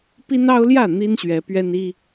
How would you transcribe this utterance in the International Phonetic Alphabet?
pi˦nɑ˦ʊ̯ljä˥˨ n̪i˦nɕɥɛ˨˦ pɥɛ˦ni˦

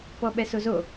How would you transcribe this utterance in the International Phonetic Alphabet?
pɔɓɛsozo

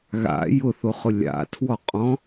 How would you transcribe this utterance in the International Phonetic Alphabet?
ɣa̰ jʊθoχʊ lʲa̰tʰwɔqʼɔ̃

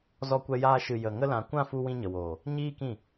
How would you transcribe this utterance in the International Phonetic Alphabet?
zɔ˧kʷɛ˧jaː˧ ʃɨ˨jə˨ ŋə˧lã˨kʷã˦˨fu˧ wĩ˧ɲə˨woː˨ | ɲiː˦kĩ˦˨

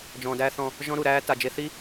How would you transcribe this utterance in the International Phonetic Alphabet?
d͡ʒɔ̃ː˨dæː˦θɔ̃˧ | ʒɔ̃˦ɾu˨ɾæː˦ ta˨ d͡ʒe˧θi˦

